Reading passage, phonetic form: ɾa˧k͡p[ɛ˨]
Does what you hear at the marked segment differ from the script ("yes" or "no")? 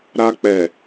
no